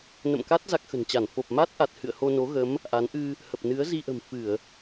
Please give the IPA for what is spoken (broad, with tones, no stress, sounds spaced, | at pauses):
n ə̰˧˨ m k a˦˥ t̚ z a˦˥ k̚ x ə̤˨˩ n t͡ɕ a˧˩ n f o˨˩ p̚ m a˦˥ t̚ ʔ a˨˩ t̚ h ɨ̰˧˨ ə̯ h o˧ n o˨˦ ɣ ə˨˦ m | ʔ a˨˦ n ʔ ɨ˧ | h ə˨˩ p̚ n ɨ˨˦ ə̯ z i˧ ʔ ə̤˨˩ m f ɨ˧˩˨ ə̯